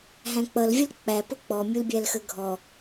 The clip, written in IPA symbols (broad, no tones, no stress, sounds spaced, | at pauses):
ɦ æ̃ k͡p ʌ l vʲ ə l k͡p æ p ʊ k͡p ɔ mʲ u l bʲ æ l x ə ɡʱ ɔ